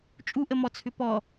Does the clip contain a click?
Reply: no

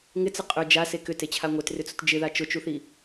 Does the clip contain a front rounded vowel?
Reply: yes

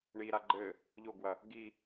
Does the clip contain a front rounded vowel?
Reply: no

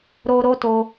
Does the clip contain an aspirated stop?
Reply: no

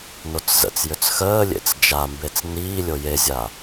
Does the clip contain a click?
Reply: no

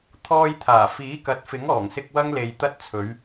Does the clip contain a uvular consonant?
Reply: no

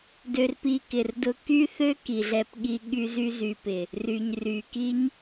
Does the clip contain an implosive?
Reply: yes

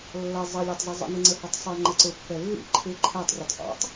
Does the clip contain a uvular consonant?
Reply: no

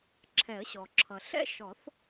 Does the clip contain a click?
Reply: yes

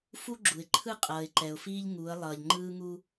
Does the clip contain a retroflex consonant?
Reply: no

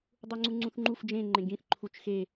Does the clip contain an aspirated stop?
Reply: yes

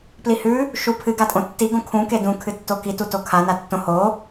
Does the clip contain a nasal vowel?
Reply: yes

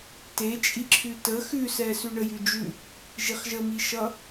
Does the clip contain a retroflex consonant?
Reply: yes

